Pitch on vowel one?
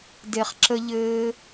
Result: low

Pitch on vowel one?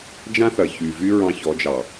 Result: high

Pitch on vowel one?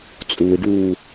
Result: low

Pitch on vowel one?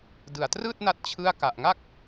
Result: low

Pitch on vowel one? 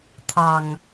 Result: low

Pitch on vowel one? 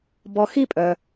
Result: low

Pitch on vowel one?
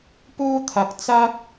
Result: high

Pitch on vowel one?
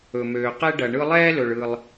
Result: low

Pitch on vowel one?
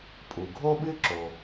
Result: low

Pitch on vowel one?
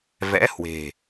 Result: rising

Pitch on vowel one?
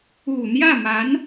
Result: low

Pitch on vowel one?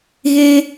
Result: high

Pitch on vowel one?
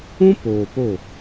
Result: high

